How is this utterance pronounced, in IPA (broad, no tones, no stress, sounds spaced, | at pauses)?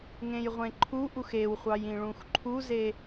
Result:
ŋ ẽ j ʁʷ ẽ ǃʰ u ʔ u x e w χʷ ɑ j ĩ ɭ ũ x ǃʰ u z e